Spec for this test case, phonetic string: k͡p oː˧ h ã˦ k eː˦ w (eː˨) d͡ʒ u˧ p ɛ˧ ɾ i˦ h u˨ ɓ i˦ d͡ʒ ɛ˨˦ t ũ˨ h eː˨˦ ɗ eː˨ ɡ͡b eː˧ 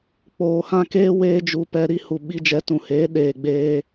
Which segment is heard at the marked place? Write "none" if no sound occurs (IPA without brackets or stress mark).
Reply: eː˦